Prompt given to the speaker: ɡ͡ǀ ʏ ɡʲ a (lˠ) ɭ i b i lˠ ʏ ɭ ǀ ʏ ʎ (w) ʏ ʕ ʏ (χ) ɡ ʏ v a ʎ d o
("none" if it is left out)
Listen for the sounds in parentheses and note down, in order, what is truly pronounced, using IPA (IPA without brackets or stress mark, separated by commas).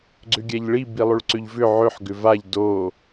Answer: ʎ, v, ħ